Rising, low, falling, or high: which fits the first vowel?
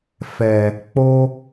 low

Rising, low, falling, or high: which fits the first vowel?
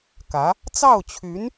rising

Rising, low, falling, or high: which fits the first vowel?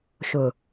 low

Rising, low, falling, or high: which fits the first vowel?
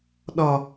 low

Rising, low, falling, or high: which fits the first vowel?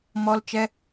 high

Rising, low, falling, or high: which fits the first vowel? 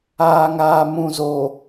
low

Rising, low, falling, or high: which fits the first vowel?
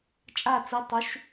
falling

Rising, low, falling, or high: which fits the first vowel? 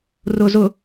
low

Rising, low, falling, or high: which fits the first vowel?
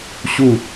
falling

